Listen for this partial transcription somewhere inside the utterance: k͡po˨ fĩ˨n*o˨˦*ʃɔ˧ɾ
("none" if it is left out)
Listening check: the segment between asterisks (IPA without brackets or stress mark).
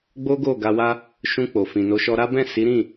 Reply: o˨˦